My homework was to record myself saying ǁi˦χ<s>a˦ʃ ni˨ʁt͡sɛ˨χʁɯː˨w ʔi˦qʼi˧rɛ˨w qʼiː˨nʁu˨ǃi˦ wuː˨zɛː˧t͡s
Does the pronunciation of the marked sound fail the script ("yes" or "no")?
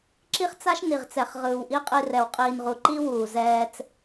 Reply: yes